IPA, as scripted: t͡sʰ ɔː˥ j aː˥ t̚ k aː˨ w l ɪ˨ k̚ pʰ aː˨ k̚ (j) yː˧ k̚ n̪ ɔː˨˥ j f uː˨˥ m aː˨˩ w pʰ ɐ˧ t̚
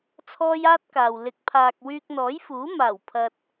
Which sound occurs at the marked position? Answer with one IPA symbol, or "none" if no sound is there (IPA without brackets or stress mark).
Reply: w